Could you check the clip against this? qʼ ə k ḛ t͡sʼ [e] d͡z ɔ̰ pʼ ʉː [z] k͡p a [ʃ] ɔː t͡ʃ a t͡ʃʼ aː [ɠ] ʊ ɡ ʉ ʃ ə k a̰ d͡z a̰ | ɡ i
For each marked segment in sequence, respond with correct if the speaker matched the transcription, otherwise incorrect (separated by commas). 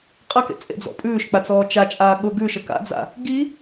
incorrect, incorrect, incorrect, correct